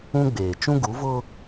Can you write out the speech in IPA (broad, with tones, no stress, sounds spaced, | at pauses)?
ũ˦ ɡ͡b eː˨ t͡ʃ ũ˦ ɡ u˨˦ v ʊ˦